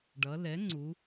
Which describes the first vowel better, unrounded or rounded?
unrounded